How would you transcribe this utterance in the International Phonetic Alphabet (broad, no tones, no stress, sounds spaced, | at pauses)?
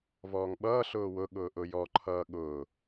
v ɔː ŋ ɓ ʌː ɬ ʊː w ʊ ɠ ʊː ʔ ʊ j ɔ ǃʰ ʌː ɠ ʊː